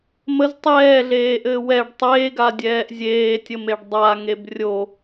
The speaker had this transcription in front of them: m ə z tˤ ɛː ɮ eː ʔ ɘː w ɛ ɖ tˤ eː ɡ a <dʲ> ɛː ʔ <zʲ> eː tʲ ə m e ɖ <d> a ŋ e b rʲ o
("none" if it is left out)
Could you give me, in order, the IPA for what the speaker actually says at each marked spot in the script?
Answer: dʲ, zʲ, dˤ

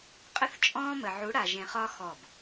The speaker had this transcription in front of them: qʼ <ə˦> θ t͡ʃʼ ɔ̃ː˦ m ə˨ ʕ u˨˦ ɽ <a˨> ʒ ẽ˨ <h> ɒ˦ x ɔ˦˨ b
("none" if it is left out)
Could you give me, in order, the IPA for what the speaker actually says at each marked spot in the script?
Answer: ə˦, a˨, χ

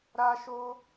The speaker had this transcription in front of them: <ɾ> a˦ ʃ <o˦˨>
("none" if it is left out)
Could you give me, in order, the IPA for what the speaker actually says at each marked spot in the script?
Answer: ɾ, o˦

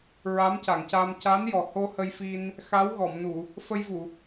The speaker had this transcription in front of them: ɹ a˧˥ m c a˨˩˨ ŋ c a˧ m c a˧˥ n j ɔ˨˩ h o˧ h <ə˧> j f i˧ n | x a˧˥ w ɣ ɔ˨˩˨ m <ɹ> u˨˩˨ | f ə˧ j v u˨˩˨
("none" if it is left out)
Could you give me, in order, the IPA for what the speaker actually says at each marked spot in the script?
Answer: ə˧, n

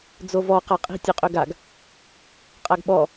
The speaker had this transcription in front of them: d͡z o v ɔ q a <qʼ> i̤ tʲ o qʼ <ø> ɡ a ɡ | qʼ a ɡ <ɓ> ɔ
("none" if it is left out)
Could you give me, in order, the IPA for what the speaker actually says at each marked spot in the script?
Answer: qʼ, ø, ɓ

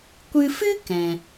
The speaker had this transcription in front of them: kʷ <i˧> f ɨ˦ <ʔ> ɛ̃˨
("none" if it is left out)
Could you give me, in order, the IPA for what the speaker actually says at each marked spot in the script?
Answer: ɨ˧, k

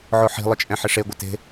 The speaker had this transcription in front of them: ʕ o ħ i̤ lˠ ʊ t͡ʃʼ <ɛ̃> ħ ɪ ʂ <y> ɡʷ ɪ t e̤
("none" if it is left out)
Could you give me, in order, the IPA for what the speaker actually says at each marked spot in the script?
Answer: ɛ̃, e

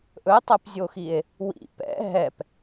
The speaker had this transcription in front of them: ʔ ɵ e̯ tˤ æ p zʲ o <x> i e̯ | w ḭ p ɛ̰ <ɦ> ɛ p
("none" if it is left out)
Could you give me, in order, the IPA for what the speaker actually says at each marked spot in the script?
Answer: x, ɦ

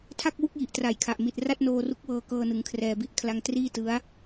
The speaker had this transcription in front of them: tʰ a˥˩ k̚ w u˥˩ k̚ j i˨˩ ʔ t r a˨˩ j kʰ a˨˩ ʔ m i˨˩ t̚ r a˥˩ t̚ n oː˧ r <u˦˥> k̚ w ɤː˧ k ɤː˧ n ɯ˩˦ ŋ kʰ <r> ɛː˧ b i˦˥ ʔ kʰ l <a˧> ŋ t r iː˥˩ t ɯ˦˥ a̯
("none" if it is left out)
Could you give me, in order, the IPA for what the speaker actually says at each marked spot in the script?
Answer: u˦˥, r, a˧

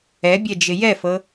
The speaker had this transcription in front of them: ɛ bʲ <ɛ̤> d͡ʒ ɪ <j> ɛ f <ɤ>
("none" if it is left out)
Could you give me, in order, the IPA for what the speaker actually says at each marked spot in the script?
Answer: ɛ, j, ɤ

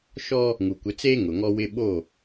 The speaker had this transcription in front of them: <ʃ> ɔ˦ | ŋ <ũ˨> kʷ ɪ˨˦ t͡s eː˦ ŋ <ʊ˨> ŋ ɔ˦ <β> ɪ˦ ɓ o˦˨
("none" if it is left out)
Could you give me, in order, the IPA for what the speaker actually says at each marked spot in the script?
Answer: ʃ, u˨, ʊ˨, w

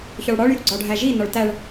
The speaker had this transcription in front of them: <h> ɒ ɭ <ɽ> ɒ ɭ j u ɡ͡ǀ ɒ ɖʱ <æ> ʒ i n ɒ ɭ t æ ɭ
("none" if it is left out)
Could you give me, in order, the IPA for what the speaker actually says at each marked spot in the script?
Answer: ç, ɽ, æ

